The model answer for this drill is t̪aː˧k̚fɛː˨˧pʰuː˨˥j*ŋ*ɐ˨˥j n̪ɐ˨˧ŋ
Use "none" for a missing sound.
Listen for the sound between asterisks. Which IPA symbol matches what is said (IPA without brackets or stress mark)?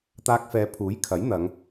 kʰ